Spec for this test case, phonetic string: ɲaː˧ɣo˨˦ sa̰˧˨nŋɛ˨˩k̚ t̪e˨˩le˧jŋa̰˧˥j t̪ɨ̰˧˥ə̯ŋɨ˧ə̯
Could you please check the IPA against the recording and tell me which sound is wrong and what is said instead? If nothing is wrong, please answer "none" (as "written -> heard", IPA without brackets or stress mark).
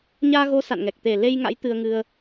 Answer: ɨ̰˧˥ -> ɨ˧